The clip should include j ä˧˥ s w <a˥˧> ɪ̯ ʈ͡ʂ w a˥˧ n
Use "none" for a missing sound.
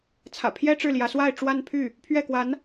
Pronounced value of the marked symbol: a˥˧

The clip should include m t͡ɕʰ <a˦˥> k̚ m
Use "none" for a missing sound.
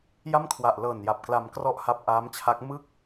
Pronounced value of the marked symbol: a˦˥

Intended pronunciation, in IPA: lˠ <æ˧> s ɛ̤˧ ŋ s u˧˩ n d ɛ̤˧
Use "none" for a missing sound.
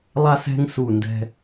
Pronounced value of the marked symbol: a˧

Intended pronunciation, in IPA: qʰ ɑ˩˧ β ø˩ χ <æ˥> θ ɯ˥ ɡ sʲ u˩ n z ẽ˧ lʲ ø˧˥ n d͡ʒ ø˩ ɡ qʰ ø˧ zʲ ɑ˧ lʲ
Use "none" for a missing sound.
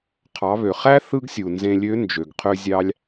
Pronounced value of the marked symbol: æ˥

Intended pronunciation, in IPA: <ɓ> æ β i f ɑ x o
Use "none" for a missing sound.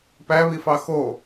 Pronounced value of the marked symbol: p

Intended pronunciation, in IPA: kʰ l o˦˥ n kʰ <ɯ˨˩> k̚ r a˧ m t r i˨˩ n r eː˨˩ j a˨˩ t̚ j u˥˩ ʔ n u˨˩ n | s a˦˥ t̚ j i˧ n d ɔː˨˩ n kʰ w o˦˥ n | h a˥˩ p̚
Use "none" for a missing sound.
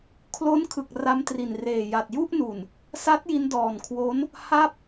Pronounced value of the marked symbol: ɯ˨˩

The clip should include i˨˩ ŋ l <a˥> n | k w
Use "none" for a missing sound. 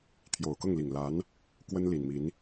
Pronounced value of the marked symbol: a˧˥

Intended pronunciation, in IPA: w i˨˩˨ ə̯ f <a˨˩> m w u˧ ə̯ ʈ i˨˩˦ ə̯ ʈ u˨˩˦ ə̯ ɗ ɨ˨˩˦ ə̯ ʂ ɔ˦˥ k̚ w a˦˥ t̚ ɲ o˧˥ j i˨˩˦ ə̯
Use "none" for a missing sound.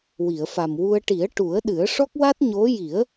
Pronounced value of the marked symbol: a˨˩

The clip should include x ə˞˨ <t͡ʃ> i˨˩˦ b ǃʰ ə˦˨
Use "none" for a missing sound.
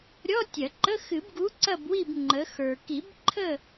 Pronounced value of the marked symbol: k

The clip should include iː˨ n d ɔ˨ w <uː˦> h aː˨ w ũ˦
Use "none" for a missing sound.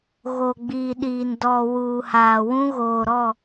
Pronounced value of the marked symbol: uː˨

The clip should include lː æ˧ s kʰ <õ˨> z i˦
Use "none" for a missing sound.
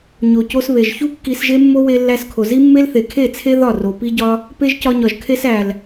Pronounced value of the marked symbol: o˨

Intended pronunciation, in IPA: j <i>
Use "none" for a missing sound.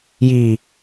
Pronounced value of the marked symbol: i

